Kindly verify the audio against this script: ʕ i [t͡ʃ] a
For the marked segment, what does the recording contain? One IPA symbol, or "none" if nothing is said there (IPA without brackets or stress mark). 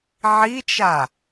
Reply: t͡ʃ